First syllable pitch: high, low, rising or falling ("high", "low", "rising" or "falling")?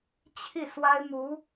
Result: falling